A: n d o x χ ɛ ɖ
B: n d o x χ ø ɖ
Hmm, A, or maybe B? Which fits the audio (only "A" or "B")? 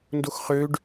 B